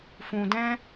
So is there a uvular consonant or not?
no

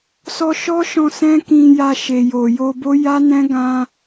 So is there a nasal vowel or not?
yes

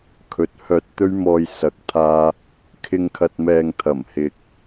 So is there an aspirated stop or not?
yes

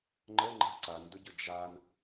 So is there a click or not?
yes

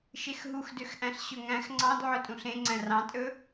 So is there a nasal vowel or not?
yes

